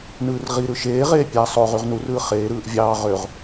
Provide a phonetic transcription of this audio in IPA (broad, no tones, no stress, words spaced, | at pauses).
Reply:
nɯːrʁiɾɯ ʃeːʁeː pʲæ sˤo ʁyʁnurɯː χeːɾɯːʔ vʲɑː ʁøʁ